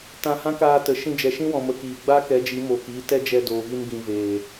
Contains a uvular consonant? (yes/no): no